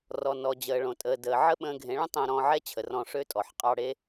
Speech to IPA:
r ɔ˨ n ɔ˨ d͡ʑ əː˨ ɭ õ˨ tʼ əː˨ d əː˨ ʕ ə˦ ɓ ə̃ː˧ ɡʱ ẽ˨˦ ɭ ə̃˦ tˤ ə̃ː˧ ɾ ɔ̃ː˧ ʕ ɛ˦ t͡ɕʰ ə˨ r ɔ̃˧ ʂ ø˦ tʼ ɔ˨ ħ qʼ ɑ˧ ɽ e˦

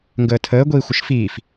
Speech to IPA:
ŋ ɡ əː tʰ əː ɡʷ iː xʷ ə ʃ f iː f

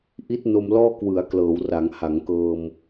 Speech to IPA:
ʔ i˦˥ t̚ n o˧ m l ɔː˥˩ k w ɯ˩˦ a̯ k l ɤː˩˦ w r aː˩˦ ŋ h a˩˦ ŋ k ɤː˧ m

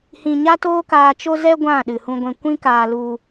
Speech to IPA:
h ĩ˧ ɲ a˦ t oː˦ k aː˧ t͡ʃ o˦ z ɛ˦ ɡʷ ã˦˨ ɗ ɨ˨ h ũ˧ ɡʷ ɛ̃˧ kʷ ĩ˦ k aː˧ l u˧

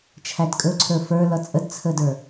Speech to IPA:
t͡ʃʰ æ d kʼ ɵ ǀʰ ə˞ f ə˞ l ʌ t͡sʼ ə d t͡sʰ ə d ə˞

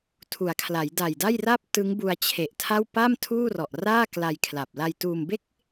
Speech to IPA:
tʰ u˩˦ a̯ kʰ l a˩˦ j d a˨˩ j d a˥˩ j r a˦˥ p̚ t ɯ˦˥ ŋ b u˧ a̯ t͡ɕʰ e˨˩ ʔ tʰ a˥˩ w p a˥˩ m tʰ uː˥˩ r ɔ˨˩ ʔ r aː˥˩ k l a˧ j kʰ l a˨˩ p̚ l a˧ j t uː˧ m b e˥˩ k̚

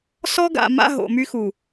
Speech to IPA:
s ɔ˦ ɡ a̰˨ m a̰˦ ɦ o̰˨ m y˦ x u˨

